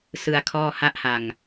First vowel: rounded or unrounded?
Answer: unrounded